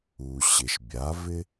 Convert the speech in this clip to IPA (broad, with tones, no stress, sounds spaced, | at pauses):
u˩ ɕ ɪ˩ ʃ bʲ a˩˥ v ɪ˥